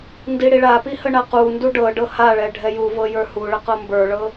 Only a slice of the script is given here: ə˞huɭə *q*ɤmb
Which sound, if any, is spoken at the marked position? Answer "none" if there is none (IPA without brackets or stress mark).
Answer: q